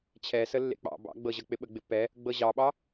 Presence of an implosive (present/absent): present